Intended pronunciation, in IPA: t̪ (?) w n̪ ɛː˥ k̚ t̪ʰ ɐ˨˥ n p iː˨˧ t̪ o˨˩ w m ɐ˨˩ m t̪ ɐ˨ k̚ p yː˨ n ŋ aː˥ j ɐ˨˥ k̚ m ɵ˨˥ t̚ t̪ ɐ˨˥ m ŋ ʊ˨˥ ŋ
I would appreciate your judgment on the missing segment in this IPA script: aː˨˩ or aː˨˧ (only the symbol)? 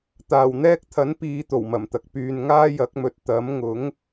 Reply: aː˨˩